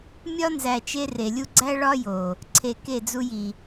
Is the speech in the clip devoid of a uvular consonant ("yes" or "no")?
yes